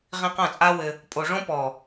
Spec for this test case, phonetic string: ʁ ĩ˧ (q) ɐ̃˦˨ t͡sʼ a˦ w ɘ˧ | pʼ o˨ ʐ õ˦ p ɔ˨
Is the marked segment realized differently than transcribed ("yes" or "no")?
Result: no